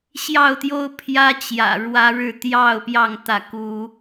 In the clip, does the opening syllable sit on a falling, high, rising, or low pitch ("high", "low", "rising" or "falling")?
falling